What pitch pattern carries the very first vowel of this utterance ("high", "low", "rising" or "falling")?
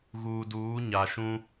low